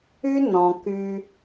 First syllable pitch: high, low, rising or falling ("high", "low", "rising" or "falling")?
high